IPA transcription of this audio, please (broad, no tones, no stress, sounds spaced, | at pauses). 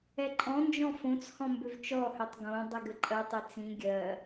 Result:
ɛ ǃʼ ɔ̃ n d͡ʒ ɔ̃ f õ t͡s h ɔ̃ m b ʏ v t͡ʃ ɔ h ø tˤ ɡ õ dˤ i ɡ ɘ ǃʼ ɜ tˤ i t͡s ĩ ɡʲ ɜ